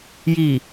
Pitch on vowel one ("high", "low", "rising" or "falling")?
low